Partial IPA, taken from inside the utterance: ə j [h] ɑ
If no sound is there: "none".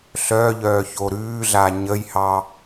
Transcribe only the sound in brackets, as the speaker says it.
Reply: h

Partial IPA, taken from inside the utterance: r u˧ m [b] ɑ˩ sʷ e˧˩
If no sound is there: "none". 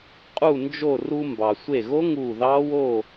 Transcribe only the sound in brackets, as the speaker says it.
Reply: b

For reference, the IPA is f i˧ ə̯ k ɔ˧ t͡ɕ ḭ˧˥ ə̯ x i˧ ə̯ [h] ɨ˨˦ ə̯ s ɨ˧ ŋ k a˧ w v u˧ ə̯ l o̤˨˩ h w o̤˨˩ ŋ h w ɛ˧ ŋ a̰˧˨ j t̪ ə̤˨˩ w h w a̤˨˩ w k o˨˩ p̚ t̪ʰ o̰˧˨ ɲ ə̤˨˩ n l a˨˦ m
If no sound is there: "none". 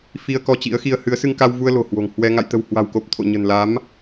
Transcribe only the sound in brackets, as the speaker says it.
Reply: h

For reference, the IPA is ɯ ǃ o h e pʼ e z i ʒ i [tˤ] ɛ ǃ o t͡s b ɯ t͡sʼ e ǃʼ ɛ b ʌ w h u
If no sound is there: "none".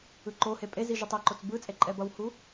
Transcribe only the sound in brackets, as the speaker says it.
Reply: tˤ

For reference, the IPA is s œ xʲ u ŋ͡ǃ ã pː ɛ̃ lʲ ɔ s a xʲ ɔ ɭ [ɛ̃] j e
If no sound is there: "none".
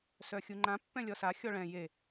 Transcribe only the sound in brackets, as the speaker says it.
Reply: ɛ̃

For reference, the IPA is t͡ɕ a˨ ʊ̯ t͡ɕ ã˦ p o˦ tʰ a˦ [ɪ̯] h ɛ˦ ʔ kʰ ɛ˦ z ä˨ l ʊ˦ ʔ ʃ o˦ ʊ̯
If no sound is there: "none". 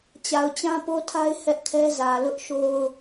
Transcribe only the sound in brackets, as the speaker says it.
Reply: ɪ̯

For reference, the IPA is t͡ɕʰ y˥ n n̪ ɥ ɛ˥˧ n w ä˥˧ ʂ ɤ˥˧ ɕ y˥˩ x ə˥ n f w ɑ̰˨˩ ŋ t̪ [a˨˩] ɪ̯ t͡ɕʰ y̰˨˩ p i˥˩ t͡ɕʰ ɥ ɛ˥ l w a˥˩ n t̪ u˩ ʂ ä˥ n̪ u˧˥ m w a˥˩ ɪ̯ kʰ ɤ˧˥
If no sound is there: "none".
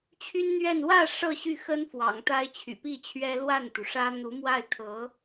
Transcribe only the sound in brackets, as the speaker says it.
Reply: a˥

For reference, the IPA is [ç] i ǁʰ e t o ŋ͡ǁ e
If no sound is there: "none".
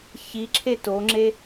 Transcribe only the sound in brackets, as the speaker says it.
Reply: ç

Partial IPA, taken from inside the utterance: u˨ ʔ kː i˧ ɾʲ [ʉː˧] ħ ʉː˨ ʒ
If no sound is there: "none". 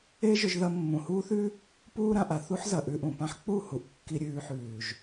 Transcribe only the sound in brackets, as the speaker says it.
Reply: ʉː˧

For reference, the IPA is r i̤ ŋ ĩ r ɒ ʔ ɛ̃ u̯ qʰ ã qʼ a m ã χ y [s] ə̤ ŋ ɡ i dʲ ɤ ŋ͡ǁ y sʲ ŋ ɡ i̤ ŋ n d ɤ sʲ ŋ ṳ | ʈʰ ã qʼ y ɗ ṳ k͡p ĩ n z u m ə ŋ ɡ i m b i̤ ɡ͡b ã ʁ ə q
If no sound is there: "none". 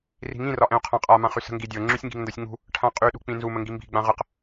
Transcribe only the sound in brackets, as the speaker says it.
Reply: s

